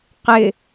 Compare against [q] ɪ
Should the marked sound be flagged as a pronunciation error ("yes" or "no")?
no